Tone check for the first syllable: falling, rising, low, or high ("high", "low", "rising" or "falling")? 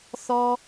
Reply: high